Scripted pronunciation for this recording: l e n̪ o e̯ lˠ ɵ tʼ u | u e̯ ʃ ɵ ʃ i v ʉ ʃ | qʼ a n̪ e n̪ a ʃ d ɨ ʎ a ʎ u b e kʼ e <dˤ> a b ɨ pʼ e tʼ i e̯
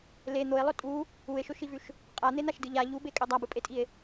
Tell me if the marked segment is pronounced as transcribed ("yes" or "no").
yes